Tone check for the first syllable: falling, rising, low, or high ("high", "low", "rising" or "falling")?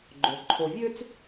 low